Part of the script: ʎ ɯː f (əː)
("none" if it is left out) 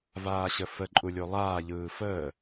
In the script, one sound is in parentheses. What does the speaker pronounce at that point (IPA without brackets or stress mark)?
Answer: əː